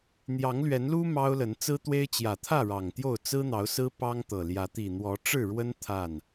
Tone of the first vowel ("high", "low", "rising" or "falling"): rising